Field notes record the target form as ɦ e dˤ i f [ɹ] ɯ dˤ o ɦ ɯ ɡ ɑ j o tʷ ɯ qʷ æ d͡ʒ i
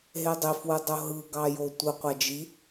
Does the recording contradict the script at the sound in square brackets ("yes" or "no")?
yes